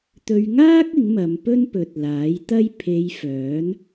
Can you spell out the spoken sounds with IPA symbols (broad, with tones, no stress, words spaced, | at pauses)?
t̪ɵ˧ɥŋaː˥k̚ ɪ˨˥ŋmɐ˨˧mpɵ˥n pɵ˨t̚ laː˨˥jt̪ɐ˥j pʰe˨˧j fœː˨˥n